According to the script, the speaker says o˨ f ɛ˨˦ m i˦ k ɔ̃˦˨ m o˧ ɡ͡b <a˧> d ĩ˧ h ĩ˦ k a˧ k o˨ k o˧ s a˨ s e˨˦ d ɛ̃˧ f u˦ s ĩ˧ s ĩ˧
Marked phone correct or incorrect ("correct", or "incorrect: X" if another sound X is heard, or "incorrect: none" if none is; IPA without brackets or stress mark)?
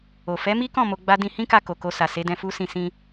incorrect: a˦